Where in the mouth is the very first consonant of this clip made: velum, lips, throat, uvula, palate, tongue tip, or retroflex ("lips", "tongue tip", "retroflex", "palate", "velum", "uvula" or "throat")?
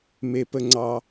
lips